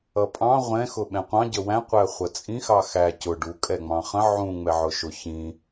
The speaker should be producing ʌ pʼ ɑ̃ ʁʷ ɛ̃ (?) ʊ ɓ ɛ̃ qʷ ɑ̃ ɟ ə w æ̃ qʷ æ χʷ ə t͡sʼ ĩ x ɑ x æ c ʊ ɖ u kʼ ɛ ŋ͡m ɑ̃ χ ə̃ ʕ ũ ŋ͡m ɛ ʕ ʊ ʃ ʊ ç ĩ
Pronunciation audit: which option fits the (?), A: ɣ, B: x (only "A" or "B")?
B